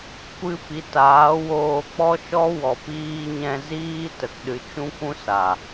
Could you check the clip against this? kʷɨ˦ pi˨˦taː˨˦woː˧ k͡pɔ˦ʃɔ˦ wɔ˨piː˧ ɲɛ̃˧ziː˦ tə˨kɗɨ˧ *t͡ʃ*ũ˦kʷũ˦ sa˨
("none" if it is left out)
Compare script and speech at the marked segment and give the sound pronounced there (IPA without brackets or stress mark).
t͡ʃ